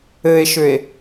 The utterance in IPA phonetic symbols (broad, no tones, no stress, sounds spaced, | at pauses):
ɘ e̯ ʃ ʏ e̯